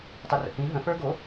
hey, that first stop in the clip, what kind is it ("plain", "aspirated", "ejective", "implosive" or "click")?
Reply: plain